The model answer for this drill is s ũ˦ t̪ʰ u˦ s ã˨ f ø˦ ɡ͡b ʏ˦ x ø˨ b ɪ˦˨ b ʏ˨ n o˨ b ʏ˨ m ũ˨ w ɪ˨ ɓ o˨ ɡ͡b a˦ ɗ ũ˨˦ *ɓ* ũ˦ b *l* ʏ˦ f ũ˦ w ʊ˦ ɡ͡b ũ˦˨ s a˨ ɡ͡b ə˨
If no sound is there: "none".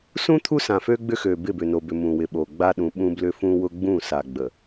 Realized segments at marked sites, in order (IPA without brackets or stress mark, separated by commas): ɓ, l